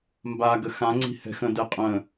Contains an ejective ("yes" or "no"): yes